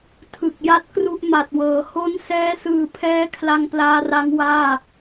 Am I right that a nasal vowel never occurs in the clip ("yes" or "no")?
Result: yes